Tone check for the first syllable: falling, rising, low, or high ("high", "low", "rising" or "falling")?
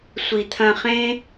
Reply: low